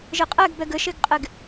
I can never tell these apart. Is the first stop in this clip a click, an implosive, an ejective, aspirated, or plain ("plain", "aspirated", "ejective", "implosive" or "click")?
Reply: ejective